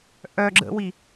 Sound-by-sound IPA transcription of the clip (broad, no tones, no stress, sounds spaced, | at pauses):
ʔ œ ɡ͡ǁ ə̰ w i